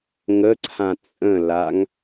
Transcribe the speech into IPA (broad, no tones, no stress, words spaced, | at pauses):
ŋəǀʰã t͡sʼə̃laŋ